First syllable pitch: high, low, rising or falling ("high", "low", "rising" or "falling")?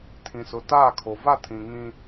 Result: low